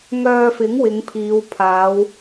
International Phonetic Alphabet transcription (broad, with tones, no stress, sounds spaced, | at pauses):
ŋ œː˧ f ɪ˨˥ ŋ w ɪ˨˧ ŋ pʰ iː˨˧ w pʰ aː˨˧ w